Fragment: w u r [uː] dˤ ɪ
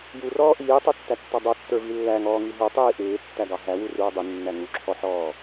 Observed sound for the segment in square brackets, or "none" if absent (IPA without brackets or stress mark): uː